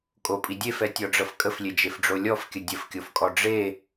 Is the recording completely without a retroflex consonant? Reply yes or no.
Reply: no